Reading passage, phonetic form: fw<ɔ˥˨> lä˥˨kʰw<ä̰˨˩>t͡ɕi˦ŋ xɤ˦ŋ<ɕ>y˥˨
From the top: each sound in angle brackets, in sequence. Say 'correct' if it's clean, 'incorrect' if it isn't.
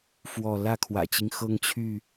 correct, correct, incorrect: t͡ɕʰ

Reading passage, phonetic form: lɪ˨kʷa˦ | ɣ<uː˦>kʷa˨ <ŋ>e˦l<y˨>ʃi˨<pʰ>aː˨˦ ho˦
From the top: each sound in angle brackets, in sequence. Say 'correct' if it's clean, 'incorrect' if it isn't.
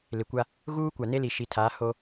correct, incorrect: n, incorrect: i˨, incorrect: tʰ

